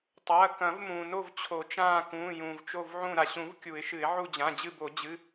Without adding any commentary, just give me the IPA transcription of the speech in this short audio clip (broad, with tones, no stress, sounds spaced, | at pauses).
tˤ ɐː˩˧˩ k ɐ̃˨˩˦ v m ũː˩ n o˦˨ v t͡ɕʰ o˨˩˦ t͡ʃ ãː˦˨ k ũː˩˧˩ j ũː˩ v t͡ʃ o˦˨ v ʕ ũ˦˨ ɾ a˩ ɕ ũ˨˩˦ v kʲ u˨˩˦ ɪ̯ ʃ ɨ˨˩˦ ɪ̯ ʕ u˦˨ d͡ʑ ã˩˧˩ d͡ʑ ɨ˦˨ b o˨˩˦ d͡ʑ ɨ˩˧˩